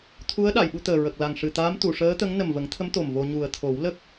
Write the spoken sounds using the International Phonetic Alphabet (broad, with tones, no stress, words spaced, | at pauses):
t̪ʰu˧˥ə̯ ɗa˨˩˨jɓu˧t̪əː˨˩ ɹə˨˩k̚la˨˩ŋ ʂɨ˨˩t̪aː˧˥mt̪u˨˩˨ ʂəː˧˥t̪ə˧˥ŋ nə˨˩mvə˨˩˦ŋt̪ʰə˧˥m t̪o˨˩mvo˧ ɲu˨˩ə̯t̪ʰo˨˩˦wlə˦˥k̚